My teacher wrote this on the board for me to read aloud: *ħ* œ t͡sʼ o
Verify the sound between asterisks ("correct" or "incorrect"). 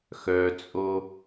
incorrect